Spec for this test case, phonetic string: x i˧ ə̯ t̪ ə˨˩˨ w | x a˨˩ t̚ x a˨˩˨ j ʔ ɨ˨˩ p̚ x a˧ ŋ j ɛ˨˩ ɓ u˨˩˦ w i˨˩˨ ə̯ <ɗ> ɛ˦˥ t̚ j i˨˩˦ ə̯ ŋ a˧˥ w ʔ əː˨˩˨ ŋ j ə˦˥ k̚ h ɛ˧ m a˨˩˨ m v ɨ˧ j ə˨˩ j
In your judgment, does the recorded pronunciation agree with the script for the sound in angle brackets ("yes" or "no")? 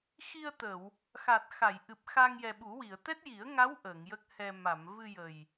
no